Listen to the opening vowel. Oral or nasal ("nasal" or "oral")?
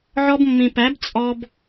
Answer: oral